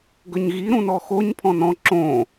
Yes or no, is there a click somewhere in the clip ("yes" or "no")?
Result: yes